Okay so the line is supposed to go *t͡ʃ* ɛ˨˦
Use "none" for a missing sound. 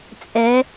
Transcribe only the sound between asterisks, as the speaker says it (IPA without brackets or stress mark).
t͡sʼ